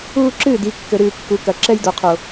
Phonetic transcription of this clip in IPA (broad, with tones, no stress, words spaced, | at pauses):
uː˦ǁɨː˦˨d i˨˦ kːɘ˨ɾɨː˨ kːu˨kɐ˨ ǁɛ˦j do˨qʰo˨